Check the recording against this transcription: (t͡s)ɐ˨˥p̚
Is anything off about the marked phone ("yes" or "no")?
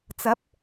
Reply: no